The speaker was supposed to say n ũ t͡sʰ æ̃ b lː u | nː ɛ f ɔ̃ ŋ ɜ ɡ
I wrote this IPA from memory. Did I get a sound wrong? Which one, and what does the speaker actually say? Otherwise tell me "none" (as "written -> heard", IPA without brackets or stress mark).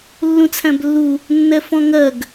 n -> lː